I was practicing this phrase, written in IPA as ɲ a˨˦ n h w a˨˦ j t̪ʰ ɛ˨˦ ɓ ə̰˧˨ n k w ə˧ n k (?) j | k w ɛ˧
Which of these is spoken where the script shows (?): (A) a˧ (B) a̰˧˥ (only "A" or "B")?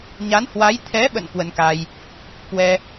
A